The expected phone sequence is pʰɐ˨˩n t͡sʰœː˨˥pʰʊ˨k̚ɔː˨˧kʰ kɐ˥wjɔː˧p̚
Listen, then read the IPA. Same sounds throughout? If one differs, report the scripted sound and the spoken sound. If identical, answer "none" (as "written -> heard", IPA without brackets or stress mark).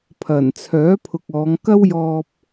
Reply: kʰ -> ŋ